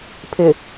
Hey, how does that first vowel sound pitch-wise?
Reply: low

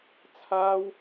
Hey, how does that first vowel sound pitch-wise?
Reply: high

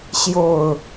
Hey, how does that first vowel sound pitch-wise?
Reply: falling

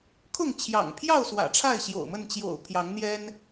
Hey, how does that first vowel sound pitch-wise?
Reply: falling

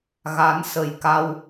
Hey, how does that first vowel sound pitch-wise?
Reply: rising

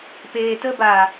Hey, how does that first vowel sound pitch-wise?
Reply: low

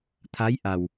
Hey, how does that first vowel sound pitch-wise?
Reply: rising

